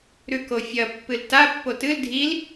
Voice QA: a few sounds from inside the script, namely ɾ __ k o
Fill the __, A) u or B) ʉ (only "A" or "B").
B